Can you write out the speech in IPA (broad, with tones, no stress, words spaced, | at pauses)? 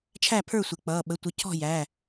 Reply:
t͡ʃʰæ˥˩pʰə˞˥˩sʷɪ˩˧˩ k͡pʌː˩˧˩ɓə˩˧˩tʷə˩˥ cʰɔ̤˥˩jæ˩˧˩